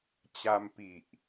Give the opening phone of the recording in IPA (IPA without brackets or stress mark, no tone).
t͡ɕ